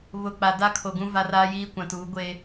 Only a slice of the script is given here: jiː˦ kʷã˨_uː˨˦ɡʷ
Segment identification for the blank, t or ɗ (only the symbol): t